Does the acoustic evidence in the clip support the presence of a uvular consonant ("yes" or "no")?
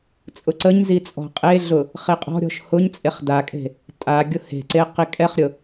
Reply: yes